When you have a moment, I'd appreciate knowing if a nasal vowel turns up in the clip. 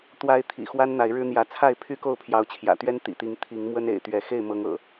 no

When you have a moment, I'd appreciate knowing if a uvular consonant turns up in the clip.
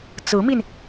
no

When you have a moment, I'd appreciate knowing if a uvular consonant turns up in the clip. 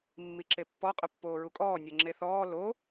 yes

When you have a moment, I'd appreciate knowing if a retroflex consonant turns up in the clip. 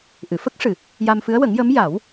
yes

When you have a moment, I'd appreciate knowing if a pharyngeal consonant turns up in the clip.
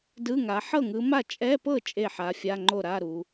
yes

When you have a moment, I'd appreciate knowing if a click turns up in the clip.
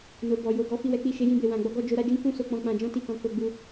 no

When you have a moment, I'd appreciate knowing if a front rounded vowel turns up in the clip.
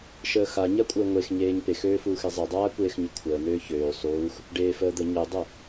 yes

